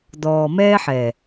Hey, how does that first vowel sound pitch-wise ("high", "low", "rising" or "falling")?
low